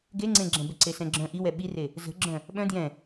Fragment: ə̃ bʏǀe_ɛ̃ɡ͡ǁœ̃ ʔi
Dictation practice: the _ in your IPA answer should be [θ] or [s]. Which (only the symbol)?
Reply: s